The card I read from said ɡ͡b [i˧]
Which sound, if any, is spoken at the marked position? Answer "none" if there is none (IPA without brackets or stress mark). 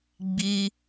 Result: i˧